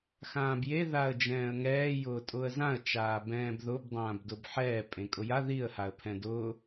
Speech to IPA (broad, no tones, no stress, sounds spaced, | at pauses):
x ãː b j e ð a ə̯ d͡ʒ ɛ̃ː ə̯ ŋ ɛː j ʊː tʼ ʊː ə̯ z ã ə̯ t͡ʃ aː b ɛ̃ː b ð ʊ b dˤ ãː b d ʊ b ħ ɛː pʼ ẽ kʼ ʊ j a ð i ə̯ h a ə̯ pʰ ɛ̃ d ʊ